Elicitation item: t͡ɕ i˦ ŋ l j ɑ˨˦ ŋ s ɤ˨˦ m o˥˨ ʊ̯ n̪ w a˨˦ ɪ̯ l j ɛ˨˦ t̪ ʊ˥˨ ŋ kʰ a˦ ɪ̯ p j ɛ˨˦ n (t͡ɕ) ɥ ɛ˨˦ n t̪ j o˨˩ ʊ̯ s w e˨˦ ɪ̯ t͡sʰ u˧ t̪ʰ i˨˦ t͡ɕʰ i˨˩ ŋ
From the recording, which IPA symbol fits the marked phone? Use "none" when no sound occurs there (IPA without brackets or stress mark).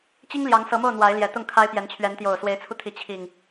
t͡ɕʰ